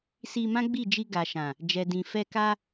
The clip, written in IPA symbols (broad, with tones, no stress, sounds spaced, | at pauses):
s i˧ m ã˦ ɡ͡b i˦˨ d͡ʒ i˧ ɡ a˨ ʃ ã˨ | d͡ʒ ɛ˨ d ĩ˨ f ɛ˧ k a˦